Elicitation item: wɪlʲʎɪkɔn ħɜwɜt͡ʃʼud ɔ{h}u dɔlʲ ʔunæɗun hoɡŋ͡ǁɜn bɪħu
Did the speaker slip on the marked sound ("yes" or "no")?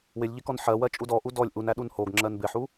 yes